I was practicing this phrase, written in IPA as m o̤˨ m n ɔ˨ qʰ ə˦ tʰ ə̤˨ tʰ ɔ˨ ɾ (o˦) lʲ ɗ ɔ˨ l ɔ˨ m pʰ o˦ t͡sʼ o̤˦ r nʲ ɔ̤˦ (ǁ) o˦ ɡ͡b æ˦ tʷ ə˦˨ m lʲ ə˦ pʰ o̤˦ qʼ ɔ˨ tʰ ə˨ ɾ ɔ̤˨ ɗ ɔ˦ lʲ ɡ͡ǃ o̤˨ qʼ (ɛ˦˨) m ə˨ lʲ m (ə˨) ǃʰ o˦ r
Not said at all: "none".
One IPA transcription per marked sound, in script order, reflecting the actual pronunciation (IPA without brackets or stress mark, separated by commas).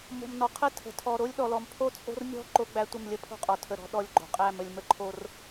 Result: o˦, ǃ, æ˦˨, ə˦